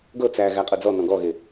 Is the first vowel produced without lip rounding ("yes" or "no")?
yes